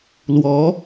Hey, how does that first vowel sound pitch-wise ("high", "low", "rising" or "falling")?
rising